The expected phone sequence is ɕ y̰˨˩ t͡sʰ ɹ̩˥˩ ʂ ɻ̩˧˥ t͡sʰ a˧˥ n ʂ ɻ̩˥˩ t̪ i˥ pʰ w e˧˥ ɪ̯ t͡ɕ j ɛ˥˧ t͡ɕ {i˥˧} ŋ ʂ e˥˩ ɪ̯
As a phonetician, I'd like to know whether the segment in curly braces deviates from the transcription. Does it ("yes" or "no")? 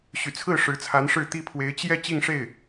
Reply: no